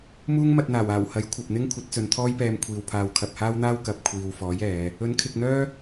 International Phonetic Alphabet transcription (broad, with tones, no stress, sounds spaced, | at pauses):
m uː˥ ŋ m ɐ˧ t̚ n̪ aː˨˩ w aː˨˩ w h ɐ˨˥ j kʷʰ ɐ˨ p̚ n̪ ɪ˥ ŋ kʷʰ ɐ˨˥ t̚ t͡s ɵ˨˧ n t̪ʰ ɔː˥ j p ɛː˧ m kʷʰ iː˨ w pʰ aː˧ w kʰ ɐ˨ p̚ h aː˥ w n̪ aː˥ w k ɐ˨ p̚ kʷʰ iː˨ w f ɔː˨˥ j ɛː˨˧ | ɵ˨˥ n kʰ ɪ˨ k̚ n̪ œː˥